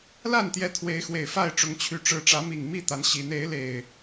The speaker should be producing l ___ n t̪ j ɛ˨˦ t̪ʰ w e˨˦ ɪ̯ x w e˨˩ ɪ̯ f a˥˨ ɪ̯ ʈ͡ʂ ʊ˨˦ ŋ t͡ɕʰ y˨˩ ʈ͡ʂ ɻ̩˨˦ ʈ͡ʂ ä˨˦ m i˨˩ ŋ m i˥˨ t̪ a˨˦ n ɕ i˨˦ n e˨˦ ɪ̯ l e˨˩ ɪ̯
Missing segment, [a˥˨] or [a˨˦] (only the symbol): a˥˨